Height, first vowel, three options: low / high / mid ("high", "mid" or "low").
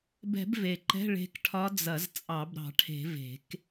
mid